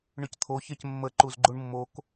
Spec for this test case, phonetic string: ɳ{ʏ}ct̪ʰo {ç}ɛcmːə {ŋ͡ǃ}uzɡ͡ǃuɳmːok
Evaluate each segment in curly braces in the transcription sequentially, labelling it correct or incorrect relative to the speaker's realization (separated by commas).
correct, correct, incorrect